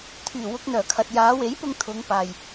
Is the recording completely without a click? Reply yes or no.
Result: yes